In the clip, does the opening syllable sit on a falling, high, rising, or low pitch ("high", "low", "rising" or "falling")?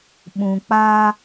low